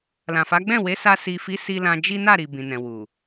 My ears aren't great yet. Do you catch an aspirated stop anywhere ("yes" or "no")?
no